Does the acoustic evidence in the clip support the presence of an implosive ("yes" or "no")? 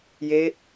no